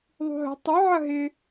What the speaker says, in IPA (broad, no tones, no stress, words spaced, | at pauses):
ðˤṳɦə̤ tˤʏ ʕɐɦɪ